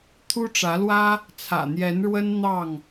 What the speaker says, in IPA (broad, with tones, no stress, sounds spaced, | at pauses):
t̪ʰ u˦ ʈ͡ʂ ä˨˦ l w ä˦ | t͡sʰ ä̰˨˩ n̪ j ɛ˨˦ n ɻ w ə˦ n n̪ ɑ˥˨ ŋ